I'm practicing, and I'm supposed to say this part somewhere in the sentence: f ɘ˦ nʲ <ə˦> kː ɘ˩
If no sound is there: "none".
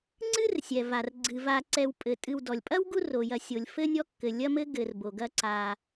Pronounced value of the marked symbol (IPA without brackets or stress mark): ɔ˦